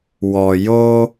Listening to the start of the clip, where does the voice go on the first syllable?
low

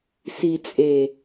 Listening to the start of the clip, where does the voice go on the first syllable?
low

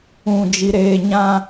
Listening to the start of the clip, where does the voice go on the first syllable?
low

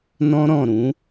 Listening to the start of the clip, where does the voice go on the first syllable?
high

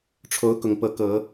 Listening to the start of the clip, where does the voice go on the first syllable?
rising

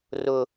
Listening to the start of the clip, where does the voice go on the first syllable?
high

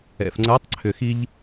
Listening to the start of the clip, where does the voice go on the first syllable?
low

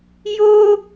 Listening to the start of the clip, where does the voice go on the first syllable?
high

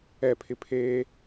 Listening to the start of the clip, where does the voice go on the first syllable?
falling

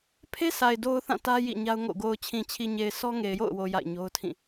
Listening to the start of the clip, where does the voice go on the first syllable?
high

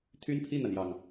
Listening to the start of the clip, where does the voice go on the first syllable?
high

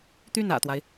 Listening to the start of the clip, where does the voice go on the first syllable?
falling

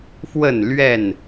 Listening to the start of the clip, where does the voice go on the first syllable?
falling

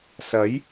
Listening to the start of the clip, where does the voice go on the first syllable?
rising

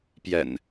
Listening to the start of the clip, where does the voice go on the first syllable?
low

